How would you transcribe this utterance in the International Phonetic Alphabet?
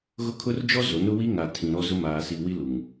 ɣ ʊ˦ kʰ ʊ˦ r d͡ʒ ɔ˦ z o˨˦ n ʊ˦ w i˦ ŋ a˨ tʰ ĩ˨ ɾ ɔ˦ z ʊ˦ m aː˨ s i˨ w i˦ l u˨ ŋ

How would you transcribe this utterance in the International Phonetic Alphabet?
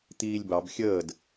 t̪ iː lʲ b ɑ b xʲ əː d

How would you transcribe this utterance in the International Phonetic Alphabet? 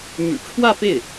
m y̰˨˩ ʈ͡ʂʰ w ä˥˧ f e˥˩ ɪ̯

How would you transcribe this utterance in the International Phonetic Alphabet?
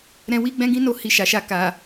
ɾ ɛ̃˧ w i˦ ɡ͡b ɛ̃˦ ɡ ĩ˦ n o˦˨ h i˧ ʃ a˨ ʃ a˧ k a˨

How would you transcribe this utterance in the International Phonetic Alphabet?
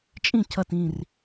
t͡ʃʼ ĩ˥˩ cʰ ʌ˧˩ t ĩ˧˩ r

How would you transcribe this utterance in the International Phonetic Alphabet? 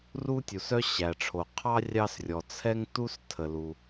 r u˥ tʲ u˩ s œ˥ ɕ æ˩ ʈ͡ʂʰ o˩ qʰ ɑ˥ rʲ ɑ˥ s rʲ ɔ˩ t͡sʰ ɛ˥ ŋ t u˥ s tʰ ə˩ l u˩

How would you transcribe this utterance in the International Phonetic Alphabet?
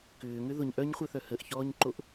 k ʏː ŋ ʏ ð ʊ ɲ ʔ œ ɲ χʷ œ θ œ h ə ʔ ç ɔː ɲ ǃ o ʔ

